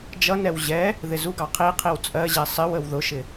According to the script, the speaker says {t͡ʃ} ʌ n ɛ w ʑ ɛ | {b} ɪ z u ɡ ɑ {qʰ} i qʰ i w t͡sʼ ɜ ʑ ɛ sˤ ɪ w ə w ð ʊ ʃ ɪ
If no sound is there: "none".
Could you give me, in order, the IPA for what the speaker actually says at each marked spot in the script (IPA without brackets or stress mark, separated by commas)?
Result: d͡ʒ, ð, qʰ